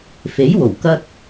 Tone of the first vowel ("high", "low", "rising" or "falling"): rising